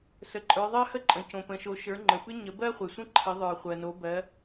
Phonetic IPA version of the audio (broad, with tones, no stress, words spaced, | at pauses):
sə˩˧ǃʼə˞˩˧ ðˤɜ˦hə˦ǃʼə̃˩ cõ˩pə̃˩˧ʃo˩˧ ʃə˞˩˧ ŋ͡ǃə˩pɨ˦ ɲə˩˧bɜ˦χʷe˩sʷə̃˦ ǃʰə˩˧ðˤə˞˩χʷɜ˩no˩˧ bɜ˩˧